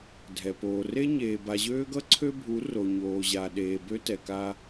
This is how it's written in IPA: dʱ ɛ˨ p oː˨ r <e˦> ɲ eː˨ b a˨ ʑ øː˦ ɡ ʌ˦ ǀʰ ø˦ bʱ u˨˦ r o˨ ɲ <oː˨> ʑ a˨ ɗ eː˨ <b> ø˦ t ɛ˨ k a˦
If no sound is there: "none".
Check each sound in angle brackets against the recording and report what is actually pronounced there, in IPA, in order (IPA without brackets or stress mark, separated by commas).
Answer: e˦, oː˨, b